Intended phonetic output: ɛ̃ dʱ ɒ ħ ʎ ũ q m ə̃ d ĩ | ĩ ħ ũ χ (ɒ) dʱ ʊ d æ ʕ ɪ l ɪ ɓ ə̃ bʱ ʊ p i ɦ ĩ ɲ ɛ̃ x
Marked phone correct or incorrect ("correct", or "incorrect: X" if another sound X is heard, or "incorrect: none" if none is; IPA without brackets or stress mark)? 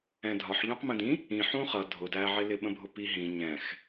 incorrect: ʌ